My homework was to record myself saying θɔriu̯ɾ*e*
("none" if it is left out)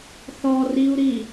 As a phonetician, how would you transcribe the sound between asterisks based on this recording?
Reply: i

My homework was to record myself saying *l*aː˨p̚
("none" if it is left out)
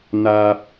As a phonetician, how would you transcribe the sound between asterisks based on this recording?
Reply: n̪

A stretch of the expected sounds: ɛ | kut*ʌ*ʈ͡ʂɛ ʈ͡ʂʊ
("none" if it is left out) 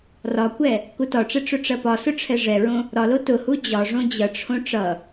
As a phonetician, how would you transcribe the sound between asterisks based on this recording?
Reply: ɒ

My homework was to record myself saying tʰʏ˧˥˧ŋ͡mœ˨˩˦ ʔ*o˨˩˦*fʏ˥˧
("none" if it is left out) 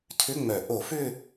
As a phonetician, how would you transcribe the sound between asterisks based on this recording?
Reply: o˨˩˦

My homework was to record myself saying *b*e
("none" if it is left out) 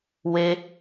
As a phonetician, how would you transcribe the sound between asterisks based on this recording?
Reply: w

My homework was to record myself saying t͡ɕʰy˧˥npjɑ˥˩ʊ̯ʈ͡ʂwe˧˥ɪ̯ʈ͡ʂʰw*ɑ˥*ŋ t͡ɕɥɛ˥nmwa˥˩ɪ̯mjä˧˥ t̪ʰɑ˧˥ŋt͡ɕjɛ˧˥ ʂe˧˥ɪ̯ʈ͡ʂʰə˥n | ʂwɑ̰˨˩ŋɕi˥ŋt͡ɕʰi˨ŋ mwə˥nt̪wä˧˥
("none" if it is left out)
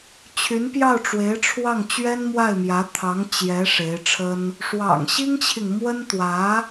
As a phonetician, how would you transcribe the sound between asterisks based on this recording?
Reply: ɑ˥˩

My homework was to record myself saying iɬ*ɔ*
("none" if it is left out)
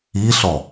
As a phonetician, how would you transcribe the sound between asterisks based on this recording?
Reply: ɔ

